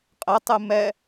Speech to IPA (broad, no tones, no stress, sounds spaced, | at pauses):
qʼ ɛ tˤ ɨ m ɛ